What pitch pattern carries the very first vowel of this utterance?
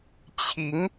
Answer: rising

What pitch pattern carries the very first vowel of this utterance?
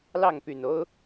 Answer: falling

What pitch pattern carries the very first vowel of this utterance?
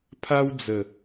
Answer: high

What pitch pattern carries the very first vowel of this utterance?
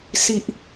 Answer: low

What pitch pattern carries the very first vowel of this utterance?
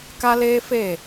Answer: high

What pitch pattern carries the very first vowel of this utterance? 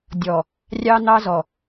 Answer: low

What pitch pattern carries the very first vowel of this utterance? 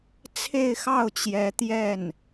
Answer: falling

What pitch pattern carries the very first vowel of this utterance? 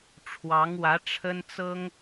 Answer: rising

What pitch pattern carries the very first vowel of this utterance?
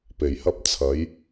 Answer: low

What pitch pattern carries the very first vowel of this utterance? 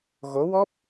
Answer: rising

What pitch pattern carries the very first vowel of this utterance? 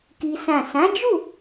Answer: high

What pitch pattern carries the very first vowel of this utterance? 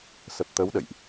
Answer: low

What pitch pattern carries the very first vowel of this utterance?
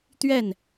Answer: falling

